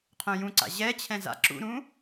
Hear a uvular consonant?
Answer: yes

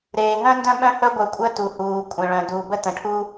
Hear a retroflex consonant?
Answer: yes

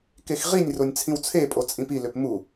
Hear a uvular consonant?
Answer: yes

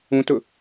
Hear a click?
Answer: no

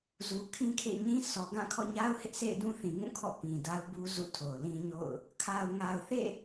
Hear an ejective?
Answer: no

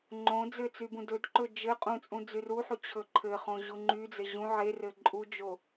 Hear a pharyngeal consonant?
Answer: yes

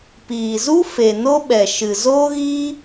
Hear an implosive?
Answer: yes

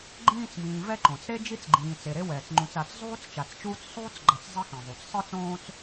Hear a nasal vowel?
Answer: yes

